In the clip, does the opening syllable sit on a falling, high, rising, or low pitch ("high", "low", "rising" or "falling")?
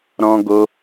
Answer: high